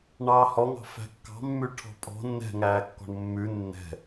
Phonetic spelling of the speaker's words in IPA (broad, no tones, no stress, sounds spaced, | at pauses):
ɳ ɑː h ɔ ŋ ɑ̤ f æ̤ kː ɑ̤ mː ʉ ʈʰ ɔ̤ pʼ ɔ̤ nː ɛ̤ ŋ æː kː ɔ̤ ɳ mː ʉ nː ɛ̤